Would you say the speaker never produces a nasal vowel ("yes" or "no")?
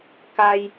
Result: yes